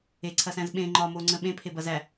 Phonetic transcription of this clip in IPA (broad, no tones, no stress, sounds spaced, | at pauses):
e ǀʰ ɐ s æ̃ z ɓ ẽ ŋ͡ǃ ɒ m o ŋ͡ǀ ə̃ ɓ ẽ pʰ e b ɐ z æ